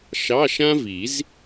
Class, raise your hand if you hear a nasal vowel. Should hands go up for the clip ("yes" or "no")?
yes